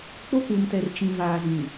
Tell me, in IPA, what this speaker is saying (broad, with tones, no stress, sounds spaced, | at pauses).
k͡p o˦ k u˨ m t ɛ˨ r t͡ʃ ĩ˨ v aː˨ z ĩ˨